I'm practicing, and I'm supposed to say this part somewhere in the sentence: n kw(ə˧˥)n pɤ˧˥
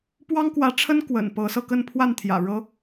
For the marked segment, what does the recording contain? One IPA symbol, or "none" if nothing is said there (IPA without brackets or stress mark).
ə̰˨˩